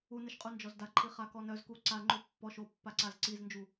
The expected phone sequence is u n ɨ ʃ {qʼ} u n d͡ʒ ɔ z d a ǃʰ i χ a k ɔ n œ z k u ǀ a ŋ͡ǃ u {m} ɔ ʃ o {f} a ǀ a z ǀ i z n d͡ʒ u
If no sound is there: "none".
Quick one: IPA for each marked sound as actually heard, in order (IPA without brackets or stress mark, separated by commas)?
qʼ, pː, pː